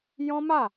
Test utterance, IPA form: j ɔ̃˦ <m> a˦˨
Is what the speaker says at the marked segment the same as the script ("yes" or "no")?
yes